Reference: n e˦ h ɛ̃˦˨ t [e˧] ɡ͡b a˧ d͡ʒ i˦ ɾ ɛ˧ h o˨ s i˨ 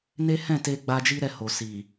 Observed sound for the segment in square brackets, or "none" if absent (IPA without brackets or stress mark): e˧